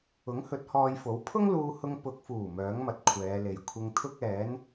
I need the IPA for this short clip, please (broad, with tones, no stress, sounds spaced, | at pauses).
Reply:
ʊ˨˥ ŋ h ɵ˨˥ t̚ h ɔː˧ j f o˨˥ w pʰ ʊ˥ ŋ l uː˧ h ʊ˧ ŋ p ʊ˨ k̚ f uː˨˩ m œː˨˥ ŋ m ɐ˨ t̚ kʷʰ ɛː˨˧ l e˨ j kʷʰ ɪ˧ ŋ t̪ʰ ʊ˥ k̚ ɛː˨˥ n